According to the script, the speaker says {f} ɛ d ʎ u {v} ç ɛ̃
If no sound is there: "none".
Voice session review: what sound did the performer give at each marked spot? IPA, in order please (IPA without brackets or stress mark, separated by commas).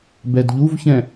b, v